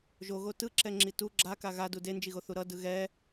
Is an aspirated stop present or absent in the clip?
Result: absent